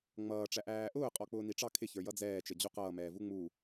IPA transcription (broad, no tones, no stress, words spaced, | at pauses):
ŋ͡mʌːʈ͡ʂæ ʔæːʔʊː qʼɔk͡pʊːniʈ͡ʂɑ kʰɪ çə˞jʌd͡zɛː t͡ʃəd͡ʑuqʌː mɛːvuŋ͡mu